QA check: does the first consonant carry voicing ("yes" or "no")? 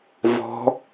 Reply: yes